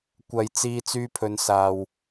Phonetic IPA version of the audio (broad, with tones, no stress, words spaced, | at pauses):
kʷɐ˨jt͡siː˧ t͡syː˧pʰɵ˨˧n saː˨w